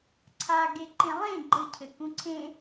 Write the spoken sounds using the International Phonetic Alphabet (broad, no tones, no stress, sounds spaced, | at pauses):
ǀʰ a ɡ e ǃ ẽ lˠ ẽ ɡ͡ǃ ɘ cʰ ɘ k ũ ǀʰ ẽ